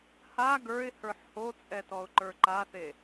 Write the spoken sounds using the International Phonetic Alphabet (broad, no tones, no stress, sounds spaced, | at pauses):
h a ɡ ə˞ ɪ̯ h ə˞ ħ h o t͡sʼ ɛ t ɔ ʊ̯ ǃ ə˞ ǃ a θ e